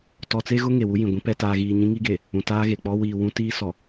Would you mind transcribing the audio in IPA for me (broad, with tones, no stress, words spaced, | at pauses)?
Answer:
tɔ˨t͡se˦ɣʊ˦ ŋe˨wu˦jĩ˨ɡʷĩ˦ pɛ˨taː˨ɣiː˨ ɲĩ˦ŋi˦ɡe˨ | ũ˨taː˦ɣe˨k͡pɔ˦ wiː˨ wũ˦tiː˦sɔ˨